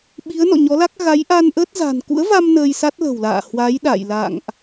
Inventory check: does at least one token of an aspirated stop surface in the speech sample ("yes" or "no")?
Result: no